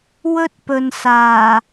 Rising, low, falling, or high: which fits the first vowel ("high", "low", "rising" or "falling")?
high